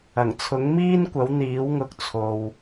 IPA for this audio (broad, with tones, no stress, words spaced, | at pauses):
ɐ˨˩ŋt͡sʰʊ˨˥ŋmiː˥nkʷɐ˨˥w n̪iː˨˥wŋʊ˨˥k̚ t͡sʰo˨w